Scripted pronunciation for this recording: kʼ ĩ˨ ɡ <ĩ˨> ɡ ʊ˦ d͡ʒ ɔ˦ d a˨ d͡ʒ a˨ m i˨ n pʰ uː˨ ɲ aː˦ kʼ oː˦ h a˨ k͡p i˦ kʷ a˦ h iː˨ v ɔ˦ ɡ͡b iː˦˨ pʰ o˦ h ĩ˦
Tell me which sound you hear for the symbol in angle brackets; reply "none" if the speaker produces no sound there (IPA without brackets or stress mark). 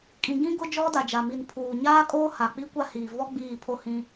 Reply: ĩ˦